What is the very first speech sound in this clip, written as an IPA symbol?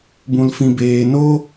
b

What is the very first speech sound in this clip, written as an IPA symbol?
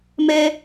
m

